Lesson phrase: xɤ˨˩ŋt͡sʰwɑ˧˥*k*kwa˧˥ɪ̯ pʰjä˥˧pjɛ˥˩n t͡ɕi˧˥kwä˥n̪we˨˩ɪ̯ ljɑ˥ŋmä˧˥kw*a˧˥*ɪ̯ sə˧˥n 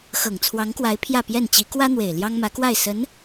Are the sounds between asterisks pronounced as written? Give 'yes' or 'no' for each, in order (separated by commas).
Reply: no, no